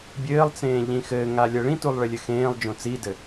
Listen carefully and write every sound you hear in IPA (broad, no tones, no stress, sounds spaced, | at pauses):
bʲ ɘː lˠ t͡s ẽː ʎ ĩ x ɘː ŋ a lʲ ɤ ɭ ĩ t u lˠ ɭ ɪ lʲ ɘ x ẽː lˠ d͡ʒ õ t͡s i d ɘ